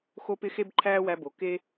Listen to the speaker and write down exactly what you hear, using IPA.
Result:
xo˧pɪ˧ xe˦bǃʰæː˦wæ˧ bo˨ke˦

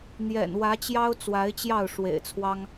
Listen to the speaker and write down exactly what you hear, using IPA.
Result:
n̪jɛ̰˨˩nwä˨˦t͡ɕjɑ˦ʊ̯ t͡swa˨˦ɪ̯t͡ɕjɑ˥˨ʊ̯ ʂwḛ˨˩ɪ̯t͡sʰwɑ˦ŋ

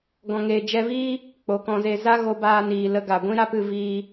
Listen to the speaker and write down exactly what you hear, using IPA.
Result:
ɡɔ̃˨ŋeː˨d͡ʒɛ˧viː˦ | k͡po˨kɔ̃˧ze˧ za˦ɣo˧baː˧niː˨ lə˧ɡa˨ɡʷĩ˦ ɾa˦pɨ˧ viː˦

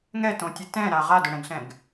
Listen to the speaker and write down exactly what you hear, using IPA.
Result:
ŋɛtõtʲɨ tɛ̃ɾa ʁadʊɽɛ̃ɡɬɛ̃ɡ

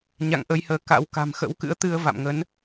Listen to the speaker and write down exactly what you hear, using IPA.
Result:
ɲa̰˧˨ŋ ʔəː˧jhəː˨˦ ka̰˧˥w ka̤˨˩mxə̰˧˥w kɨ̰˧˥ə̯t̪ɨ˧ə̯va̰˧˨mŋə˨˦n

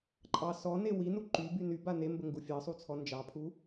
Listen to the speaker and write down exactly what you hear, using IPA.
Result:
ǃʼɑ sɔne winu ǃyby nyba nembəŋɡu fʲɑsˤut͡sʰɔ nd͡ʒɑpʰu

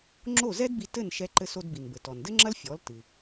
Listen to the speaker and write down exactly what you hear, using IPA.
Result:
ŋ͡ǁo˥˩zɛ˥dbi˧ tɘ˥˩nʃɛ˧ ǃɘ˧so˧dbi˩nbɘ˩ tɔ˩ndɘ˥ŋ͡ǁɐ˥l fʲɔ˩˥ltɨ˩

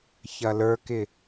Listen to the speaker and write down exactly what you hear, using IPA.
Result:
çɐlə˞kɪ

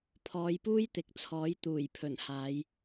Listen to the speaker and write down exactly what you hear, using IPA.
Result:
pʰɔː˨˧jpuː˥jt̪ɪ˨k̚t͡sʰɔː˨˥j t̪uː˨˩jpʰɵ˨˩nhaː˨˧j

